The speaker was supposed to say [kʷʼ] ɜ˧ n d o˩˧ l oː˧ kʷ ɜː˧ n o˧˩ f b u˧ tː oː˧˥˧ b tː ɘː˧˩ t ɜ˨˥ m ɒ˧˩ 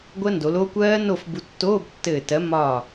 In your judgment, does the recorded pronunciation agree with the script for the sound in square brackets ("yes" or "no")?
no